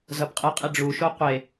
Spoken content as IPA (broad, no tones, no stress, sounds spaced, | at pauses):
z ʌ b qʼ ɯ qʼ i ɖ͡ʐ u ʃ o qʷ e